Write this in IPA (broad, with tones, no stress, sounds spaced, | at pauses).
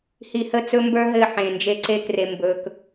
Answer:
h i˨ h ə˦˨ t͡s ɵ˦ m b ə˞˦ ɦ ɘ˦˨ ħ ẽ˨ n d͡ʒ e˦ ǀ e˦ k r e˨ m b ɵ˨ k